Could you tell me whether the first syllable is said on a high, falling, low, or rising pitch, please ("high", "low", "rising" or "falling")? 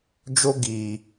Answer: high